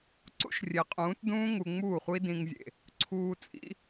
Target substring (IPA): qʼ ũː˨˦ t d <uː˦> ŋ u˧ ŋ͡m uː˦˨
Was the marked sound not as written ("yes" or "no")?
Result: yes